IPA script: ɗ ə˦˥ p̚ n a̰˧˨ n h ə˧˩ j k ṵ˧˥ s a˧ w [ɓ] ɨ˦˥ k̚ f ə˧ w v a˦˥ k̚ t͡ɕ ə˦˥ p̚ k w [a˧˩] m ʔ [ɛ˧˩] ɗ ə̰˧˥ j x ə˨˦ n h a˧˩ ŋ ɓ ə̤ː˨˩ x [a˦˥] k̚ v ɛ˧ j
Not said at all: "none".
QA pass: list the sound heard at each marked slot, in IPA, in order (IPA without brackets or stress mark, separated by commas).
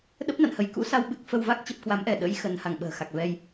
ɓ, a˨˦, ɛ˧˩, a˨˩